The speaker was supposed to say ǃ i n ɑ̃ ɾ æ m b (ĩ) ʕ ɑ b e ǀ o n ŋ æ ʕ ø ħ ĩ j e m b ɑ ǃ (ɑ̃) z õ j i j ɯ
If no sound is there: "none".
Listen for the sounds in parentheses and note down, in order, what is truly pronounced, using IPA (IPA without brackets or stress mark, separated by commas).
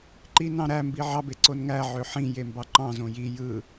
i, ɑ̃